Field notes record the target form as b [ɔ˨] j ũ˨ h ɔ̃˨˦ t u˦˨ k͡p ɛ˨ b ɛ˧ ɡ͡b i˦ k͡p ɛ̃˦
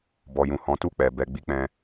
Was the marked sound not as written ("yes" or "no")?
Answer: no